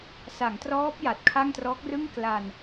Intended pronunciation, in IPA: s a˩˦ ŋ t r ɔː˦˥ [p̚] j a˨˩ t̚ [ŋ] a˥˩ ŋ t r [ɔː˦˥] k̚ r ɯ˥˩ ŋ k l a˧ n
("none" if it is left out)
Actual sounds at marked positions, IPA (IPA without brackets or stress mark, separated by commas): p̚, kʰ, ɔː˦˥